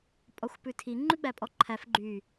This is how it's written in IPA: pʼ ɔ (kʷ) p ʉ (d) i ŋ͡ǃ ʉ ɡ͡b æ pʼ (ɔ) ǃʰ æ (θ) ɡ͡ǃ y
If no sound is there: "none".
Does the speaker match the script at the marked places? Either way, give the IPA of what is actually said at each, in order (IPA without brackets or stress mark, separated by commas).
xʷ, tʰ, ɔ, f